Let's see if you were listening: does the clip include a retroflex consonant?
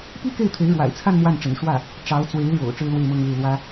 yes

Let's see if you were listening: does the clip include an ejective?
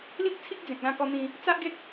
no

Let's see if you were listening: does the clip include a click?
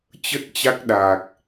no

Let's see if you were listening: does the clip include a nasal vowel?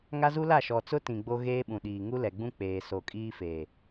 yes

